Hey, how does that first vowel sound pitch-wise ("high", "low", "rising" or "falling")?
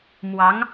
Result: rising